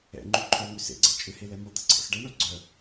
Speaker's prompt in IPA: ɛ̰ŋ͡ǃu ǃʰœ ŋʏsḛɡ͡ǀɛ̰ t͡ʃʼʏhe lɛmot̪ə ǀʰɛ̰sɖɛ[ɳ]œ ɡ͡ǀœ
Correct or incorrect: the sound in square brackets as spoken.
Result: correct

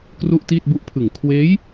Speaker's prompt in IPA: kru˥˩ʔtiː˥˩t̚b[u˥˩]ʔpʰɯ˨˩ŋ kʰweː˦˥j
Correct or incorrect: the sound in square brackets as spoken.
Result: correct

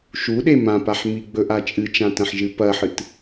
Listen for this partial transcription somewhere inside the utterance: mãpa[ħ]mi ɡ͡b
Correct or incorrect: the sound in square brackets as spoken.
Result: correct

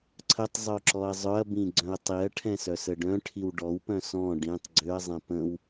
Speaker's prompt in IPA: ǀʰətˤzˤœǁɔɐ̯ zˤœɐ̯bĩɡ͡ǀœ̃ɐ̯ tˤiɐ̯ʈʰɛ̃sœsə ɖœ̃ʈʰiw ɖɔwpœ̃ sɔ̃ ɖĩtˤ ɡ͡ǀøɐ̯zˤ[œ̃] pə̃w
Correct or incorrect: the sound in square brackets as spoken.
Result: incorrect: ɛ̃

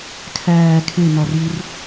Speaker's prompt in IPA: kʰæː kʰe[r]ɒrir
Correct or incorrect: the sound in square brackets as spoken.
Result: incorrect: n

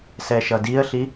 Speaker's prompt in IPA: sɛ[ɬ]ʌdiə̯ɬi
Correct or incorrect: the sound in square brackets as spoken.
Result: incorrect: ʃ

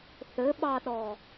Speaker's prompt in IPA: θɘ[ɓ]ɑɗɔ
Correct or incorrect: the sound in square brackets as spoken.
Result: correct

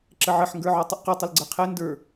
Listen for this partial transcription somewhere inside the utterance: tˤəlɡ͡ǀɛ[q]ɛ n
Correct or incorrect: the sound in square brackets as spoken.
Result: incorrect: qʰ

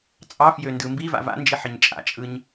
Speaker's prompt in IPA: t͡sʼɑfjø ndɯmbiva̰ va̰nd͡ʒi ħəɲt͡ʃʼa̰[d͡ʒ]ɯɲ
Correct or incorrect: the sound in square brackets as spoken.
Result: incorrect: t͡ʃʼ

